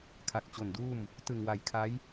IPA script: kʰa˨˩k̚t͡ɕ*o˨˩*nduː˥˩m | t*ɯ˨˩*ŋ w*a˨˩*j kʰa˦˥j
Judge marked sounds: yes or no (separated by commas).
yes, yes, yes